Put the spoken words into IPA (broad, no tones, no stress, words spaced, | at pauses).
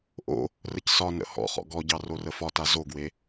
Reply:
ʔo̰ | rəcsɒnə̰ hɔ̰χɔ̰ ɡɔɟɑ rorəfɒta zoɡwe